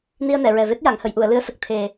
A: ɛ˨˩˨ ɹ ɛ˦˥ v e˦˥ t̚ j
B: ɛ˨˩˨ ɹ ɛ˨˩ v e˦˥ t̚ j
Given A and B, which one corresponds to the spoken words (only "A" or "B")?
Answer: B